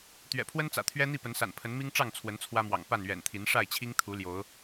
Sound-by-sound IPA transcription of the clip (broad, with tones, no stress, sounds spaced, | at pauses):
t̪ ɥ ɛ̰˨˩ pʰ w ə˦ n t͡s ä̰˨˩ t̪ʰ ɥ ɛ˦ n̪ i˥˨ p ə˨˦ n s a̰˨˩ n pʰ ə˨˦ n m i˦ ŋ ʈ͡ʂ ɑ˥˨ ŋ t͡sʰ w ə˨˦ n t͡sʰ w ä˦ m w ɑ̰˨˩ ŋ p a˥˨ n ɥ ɛ̰˨˩ n t̪ʰ i˨˦ n ʂ a˥˨ ɪ̯ t͡ɕʰ i˦ ŋ t̪ʰ u˨˦ l j o˨˦ ʊ̯